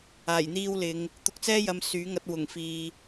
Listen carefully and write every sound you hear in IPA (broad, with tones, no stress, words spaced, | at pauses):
aː˨˩jn̪iː˧wlɪ˨˧ŋ | t̪ʊ˨˥k̚t͡sɛː˥ jɐ˧m syː˨˥ŋɐ˧t̚ wʊ˨˩ŋ fiː˨